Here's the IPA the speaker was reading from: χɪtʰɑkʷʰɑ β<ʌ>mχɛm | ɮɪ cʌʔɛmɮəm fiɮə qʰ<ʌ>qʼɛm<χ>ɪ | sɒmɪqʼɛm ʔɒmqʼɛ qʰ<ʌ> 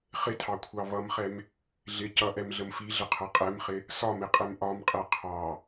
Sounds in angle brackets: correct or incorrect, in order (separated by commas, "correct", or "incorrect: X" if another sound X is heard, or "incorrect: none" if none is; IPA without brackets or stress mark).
correct, correct, correct, incorrect: ɑ